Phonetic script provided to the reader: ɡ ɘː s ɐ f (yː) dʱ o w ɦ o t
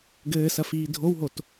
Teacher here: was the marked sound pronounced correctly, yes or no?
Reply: no